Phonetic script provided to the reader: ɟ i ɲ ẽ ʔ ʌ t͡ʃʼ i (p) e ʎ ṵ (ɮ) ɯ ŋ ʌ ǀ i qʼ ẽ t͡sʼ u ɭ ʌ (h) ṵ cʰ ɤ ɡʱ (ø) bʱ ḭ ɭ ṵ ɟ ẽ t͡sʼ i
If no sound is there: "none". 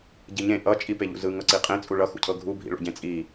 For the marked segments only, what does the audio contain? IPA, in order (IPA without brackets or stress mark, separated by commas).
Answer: p, z, x, u